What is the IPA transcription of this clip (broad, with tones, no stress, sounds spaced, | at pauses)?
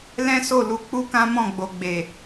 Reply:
l ɛ̃˦ s o˦˨ l u˧ k͡p u˦ k ã˦ m ɔ̃˦˨ ɡ͡b o˨ ɡ͡b e˨